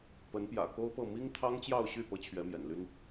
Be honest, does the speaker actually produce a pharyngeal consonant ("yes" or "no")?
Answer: no